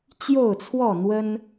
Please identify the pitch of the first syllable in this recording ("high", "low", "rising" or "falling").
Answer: falling